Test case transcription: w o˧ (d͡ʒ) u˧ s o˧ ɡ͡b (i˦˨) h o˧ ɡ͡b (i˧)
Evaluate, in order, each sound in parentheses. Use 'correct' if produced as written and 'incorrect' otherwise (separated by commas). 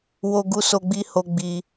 incorrect, incorrect, correct